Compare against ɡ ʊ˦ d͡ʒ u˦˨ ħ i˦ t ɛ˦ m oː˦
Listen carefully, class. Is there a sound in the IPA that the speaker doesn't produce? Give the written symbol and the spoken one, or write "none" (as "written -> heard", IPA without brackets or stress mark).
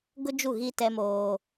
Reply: ħ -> ɣ